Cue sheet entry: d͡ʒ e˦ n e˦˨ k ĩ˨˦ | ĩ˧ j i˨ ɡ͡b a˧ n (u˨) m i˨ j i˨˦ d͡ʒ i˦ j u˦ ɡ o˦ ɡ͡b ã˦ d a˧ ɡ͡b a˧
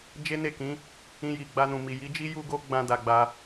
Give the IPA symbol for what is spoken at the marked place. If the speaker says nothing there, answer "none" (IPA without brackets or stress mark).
ũ˨